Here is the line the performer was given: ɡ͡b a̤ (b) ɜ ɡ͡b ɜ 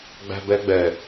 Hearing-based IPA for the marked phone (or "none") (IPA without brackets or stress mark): b